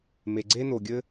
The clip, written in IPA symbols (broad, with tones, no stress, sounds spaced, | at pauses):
m e˩ ɡ͡ǀ e˥ n o˩ ɡʲ ɘ˥